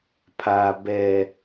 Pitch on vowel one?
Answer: low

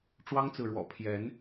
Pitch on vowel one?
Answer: high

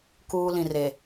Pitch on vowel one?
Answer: high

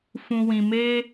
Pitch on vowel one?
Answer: low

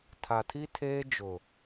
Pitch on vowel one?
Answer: low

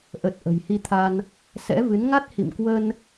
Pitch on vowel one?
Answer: low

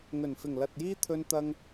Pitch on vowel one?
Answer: low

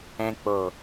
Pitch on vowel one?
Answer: low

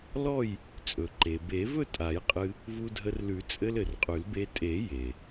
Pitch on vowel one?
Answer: falling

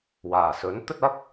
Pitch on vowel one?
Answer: low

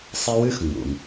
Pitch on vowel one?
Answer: high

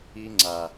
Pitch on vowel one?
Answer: high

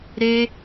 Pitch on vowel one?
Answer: high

